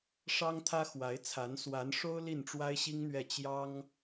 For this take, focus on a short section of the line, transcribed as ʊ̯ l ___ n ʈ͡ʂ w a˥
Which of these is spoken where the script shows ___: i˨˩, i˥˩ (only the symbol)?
i˥˩